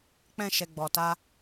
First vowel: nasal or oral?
nasal